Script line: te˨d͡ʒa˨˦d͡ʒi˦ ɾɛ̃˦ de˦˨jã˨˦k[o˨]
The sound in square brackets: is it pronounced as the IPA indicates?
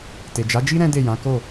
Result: no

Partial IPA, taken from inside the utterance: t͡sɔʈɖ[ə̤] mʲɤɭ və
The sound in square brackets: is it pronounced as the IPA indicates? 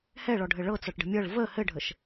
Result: yes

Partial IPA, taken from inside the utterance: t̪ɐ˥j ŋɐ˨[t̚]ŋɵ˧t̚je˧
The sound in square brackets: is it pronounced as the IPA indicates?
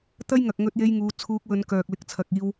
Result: no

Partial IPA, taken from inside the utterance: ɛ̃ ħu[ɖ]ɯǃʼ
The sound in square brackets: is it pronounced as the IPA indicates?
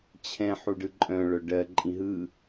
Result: yes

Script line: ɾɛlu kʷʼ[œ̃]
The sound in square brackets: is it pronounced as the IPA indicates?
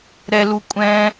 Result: no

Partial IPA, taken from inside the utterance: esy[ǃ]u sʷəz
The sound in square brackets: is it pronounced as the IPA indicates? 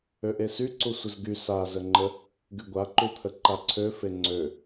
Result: no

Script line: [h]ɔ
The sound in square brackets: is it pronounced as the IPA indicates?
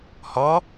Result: yes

